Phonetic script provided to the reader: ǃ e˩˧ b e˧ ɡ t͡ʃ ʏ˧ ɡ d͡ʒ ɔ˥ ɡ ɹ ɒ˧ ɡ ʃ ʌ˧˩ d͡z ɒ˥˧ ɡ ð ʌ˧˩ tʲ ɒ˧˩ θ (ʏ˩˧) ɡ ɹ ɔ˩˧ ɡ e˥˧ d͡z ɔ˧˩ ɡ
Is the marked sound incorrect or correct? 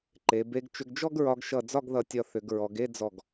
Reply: correct